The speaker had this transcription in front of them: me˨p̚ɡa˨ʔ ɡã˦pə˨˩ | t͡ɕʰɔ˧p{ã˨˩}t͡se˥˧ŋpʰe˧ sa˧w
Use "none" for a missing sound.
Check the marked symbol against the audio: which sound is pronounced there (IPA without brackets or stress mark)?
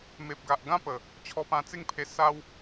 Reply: ã˧